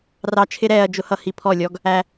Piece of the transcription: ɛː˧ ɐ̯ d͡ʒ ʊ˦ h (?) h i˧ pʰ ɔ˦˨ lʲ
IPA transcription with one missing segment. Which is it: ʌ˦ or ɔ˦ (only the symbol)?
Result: ʌ˦